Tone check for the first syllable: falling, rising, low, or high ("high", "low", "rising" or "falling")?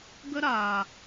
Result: high